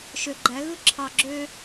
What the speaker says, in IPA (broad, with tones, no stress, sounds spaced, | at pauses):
ʃ ø˨ ɡ͡ǃ æ˨˦ ɣ ɯ˦ ǁʰ ɑ˨ ɡ͡ǁ ø˦